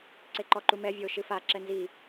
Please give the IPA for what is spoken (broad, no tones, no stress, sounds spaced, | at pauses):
ǀ e ǃ ɔ ǃ u m ɛ vʲ o ʃ ɨ f a ǁ ɛ n z i